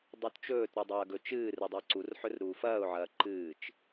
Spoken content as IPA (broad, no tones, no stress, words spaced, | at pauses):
dˤutt͡ʃɵːtɾu dˤɐːɡɵt͡ʃɨːrɨ dˤeǀurħɵr ɾuːfɐːʊ̯ʕɐː ǃɨːt͡ʃ